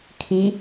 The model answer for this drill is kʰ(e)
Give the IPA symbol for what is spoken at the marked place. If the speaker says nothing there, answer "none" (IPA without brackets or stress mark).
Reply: i